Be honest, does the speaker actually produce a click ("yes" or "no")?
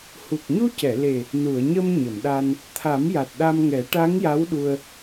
no